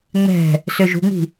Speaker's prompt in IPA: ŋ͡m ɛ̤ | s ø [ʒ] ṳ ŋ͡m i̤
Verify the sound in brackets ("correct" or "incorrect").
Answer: correct